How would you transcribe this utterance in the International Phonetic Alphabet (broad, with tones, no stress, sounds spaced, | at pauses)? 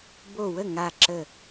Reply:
b o˧˩ w ə˥˩ ŋ a˧˩ ǁ ə˧˩